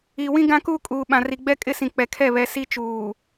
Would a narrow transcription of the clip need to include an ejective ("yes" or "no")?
yes